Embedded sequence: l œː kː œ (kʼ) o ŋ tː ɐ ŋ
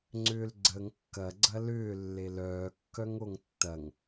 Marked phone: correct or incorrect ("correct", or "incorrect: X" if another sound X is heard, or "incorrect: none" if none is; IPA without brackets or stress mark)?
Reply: incorrect: ŋ